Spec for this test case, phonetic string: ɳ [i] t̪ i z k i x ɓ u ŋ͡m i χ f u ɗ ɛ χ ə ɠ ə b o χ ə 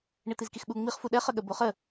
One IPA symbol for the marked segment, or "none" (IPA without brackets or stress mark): i